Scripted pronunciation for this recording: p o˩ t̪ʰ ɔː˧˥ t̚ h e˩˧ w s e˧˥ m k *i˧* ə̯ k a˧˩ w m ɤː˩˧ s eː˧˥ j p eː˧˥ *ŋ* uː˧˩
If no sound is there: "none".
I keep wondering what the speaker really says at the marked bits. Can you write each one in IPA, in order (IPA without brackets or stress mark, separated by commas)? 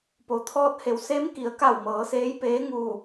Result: i˩˧, ŋ